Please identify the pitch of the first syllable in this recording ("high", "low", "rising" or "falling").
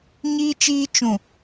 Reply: high